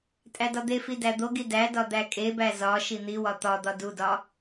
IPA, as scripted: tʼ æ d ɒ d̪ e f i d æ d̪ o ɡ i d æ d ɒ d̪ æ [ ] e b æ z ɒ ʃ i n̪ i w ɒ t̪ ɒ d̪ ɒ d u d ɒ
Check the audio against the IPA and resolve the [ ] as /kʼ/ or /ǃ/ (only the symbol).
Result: kʼ